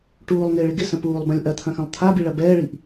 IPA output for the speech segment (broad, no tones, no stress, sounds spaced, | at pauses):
ʈ uː lˠ ŋ ɪː ɭ ɪ ɡ ɪ s ə̃ p uː lˠ b ɐ̃ lʲ ʔ ɐ t̪ʰ ɐ̃ x ɐ̃ lˠ t̪ʰ a b i ɭ ɐ b ɛː ɭ i ʔ